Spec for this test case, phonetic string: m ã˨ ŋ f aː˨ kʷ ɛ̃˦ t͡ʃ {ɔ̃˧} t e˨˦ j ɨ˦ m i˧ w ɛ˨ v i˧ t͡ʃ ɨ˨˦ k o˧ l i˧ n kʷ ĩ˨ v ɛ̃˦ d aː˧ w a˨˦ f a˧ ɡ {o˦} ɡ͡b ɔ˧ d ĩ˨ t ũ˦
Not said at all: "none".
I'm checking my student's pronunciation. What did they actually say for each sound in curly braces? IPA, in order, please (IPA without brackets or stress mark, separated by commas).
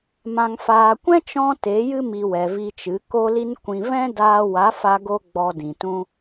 ɔ̃˦, o˧